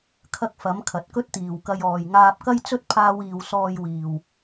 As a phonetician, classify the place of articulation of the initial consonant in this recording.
velar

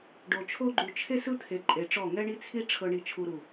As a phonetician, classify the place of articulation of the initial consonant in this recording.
retroflex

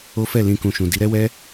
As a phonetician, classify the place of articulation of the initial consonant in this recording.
labial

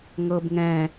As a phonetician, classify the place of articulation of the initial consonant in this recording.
velar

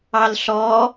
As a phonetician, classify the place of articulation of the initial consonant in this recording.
alveolar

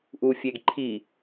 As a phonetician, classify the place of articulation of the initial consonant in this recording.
glottal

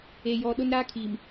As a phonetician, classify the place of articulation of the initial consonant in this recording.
palatal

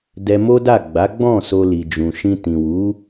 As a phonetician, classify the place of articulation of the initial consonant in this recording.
alveolar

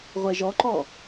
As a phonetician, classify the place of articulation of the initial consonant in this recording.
uvular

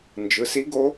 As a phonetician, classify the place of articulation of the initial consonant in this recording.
alveolar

